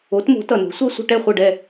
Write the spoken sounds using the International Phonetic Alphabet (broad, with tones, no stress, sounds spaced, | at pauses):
o˩˥ t m o̤˩˥ t ʌ˩ n o̤˩˥ sʷ ʌ˥ sʷ ə̤˧ ʈ ɛ˥˩ χʷ ʌ˥˩ ɖ ɛ˥˩